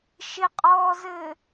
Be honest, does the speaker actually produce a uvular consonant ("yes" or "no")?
yes